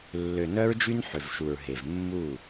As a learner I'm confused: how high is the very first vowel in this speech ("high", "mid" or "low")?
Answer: mid